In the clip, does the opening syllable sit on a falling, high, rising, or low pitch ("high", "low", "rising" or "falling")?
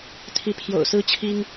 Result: rising